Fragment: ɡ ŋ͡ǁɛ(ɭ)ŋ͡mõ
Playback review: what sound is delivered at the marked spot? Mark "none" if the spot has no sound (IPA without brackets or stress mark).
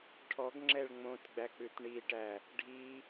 ɭ